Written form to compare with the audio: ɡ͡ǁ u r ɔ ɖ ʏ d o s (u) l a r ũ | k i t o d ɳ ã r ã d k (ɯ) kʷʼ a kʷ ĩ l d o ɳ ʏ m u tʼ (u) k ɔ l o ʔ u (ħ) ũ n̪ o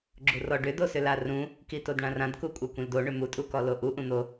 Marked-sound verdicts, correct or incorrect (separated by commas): incorrect, incorrect, correct, incorrect